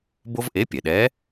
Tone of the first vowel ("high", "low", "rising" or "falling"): high